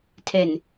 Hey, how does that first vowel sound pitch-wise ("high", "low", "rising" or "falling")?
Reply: low